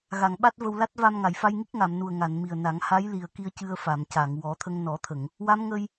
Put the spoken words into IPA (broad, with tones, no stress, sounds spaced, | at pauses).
ɣ a˨˩˨ ŋ ɓ a˦˥ t̚ v ə˧ w l a˦˥ t̚ v a˧ m ŋ a˨˩˨ j f a˧ j ŋ i˦˥ k̚ ŋ a˨˩˨ m n u˨˩ ə̯ ŋ a˨˩˨ n m i˨˩ ə̯ n a˨˩˦ ŋ h a˧˥ j l i˨˩ ə̯ k i˧ ə̯ c ɨ˧ ə̯ f a˨˩˨ m c a˨˩˨ ŋ w ɔ˨˩˦ t̪ʰ ə˧ ŋ n ɔ˨˩˦ t̪ʰ ə˨˩˨ ŋ | w a˧˥ m ŋ ə˧ j